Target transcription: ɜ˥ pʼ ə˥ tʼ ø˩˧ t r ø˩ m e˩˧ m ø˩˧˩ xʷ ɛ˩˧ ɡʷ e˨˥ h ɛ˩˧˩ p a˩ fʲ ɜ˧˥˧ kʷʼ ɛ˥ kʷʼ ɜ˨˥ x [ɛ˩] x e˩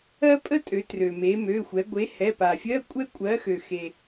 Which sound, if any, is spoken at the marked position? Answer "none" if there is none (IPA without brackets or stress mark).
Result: ø˩